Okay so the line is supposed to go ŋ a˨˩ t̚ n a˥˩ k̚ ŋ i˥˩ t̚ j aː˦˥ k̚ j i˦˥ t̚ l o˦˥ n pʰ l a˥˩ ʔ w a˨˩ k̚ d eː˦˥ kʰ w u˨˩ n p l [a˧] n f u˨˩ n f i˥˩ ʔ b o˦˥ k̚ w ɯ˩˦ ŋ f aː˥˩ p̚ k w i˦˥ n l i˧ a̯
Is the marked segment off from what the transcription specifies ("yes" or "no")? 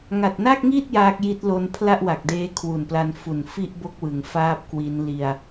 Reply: no